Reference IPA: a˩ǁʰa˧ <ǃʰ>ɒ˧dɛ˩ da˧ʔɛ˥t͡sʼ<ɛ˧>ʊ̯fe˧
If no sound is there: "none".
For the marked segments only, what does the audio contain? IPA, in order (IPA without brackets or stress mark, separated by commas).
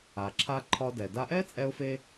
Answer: ǃʰ, ɛ˧